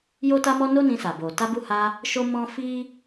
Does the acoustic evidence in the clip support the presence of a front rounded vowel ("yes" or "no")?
no